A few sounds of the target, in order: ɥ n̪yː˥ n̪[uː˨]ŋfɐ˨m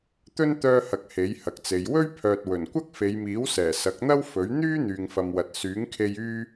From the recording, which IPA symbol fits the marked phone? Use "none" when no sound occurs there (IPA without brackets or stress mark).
yː˨